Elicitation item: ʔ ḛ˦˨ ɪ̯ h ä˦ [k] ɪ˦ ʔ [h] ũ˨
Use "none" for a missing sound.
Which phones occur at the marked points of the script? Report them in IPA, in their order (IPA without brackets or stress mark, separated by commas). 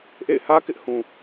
k, h